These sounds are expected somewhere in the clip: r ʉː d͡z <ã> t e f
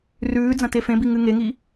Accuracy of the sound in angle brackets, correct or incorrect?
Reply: incorrect